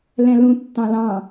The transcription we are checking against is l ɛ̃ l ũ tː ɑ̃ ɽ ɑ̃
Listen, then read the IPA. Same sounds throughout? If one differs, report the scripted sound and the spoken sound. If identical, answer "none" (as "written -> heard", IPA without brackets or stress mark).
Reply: ɽ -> l